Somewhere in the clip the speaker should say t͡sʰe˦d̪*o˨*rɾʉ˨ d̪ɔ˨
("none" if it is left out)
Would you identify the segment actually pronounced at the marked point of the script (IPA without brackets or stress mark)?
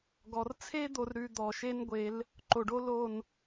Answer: o˨